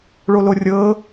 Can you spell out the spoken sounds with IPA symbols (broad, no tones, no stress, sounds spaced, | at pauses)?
ɭ o l o rʲ ɤ